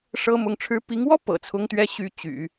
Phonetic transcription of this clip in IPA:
ʂ ɤ˥ m ʊ˧˥ ŋ ʈ͡ʂʰ ɻ̩˥ p i˧˥ ŋ w ɔ˥ p ɤ̰˨˩ t͡sʰ ʊ˥ ŋ t̪ ɥ ɛ˥ ɕ y˥ t͡ɕ y̰˨˩˦

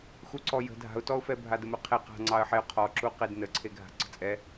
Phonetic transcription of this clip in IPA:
x u ǀ ɔ j ə̤ dʱ a̤ ʊ̯ t ɔ ʊ̯ f ɛ bʱ a d ə m ɘ qʰ e q a̤ ŋ͡ǀ ɑ ə̯ ħ e ʊ̯ qʰ ɔ ǁ u q e d n ə ǀʰ e ɡʱ a̤ ǀ ə̤ t͡sʼ ɛ

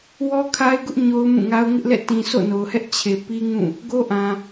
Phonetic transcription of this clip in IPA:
w ɔ˦ kʰ a˦ ɪ̯ ɡ ʊ˦ ʔ ɲ o˦ ʊ̯ m ũ˦˨ ŋ a˦ ʊ̯ ŋ ɪ˦ ʔ l ɛ̰˦˨ t ĩ˨ s o̰˦˨ n o˨ ʊ̯ h ɛ˦ ʔ t͡ɕʰ e˨ p i˦ ŋ ũ˦˨ | ɡ o˦ ʔ ã˨

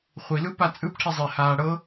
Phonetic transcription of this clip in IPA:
χʷ i l ɯ p a t͡sʼ ɯ p ʈʰ i zˤ e h aː ɽ ɤ

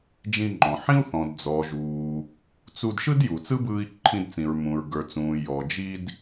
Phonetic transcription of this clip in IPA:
d͡ʒ ĩ˧ ŋ͡ǃ ɔ̃˩ ħ ĩ˥ u̯ θ ɔ̃˩ d d͡z ɔː˩ ʒ uː˩ | t͡s u˧ d ʃ ɯ˥ d j u˩ t͡s ɯ˥ b ɯː˧ i̯ ǃʰ ĩ˧ d t͡s ĩ˩ ɹ m ũ˩ ɹ ɡ ə˞˩ t͡s ũː˩ j ɔ˩ d͡ʒ i˧ d

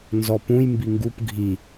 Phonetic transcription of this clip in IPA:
n z ɔ p ũ j m b i ŋ ɡ u p ɡʱ i

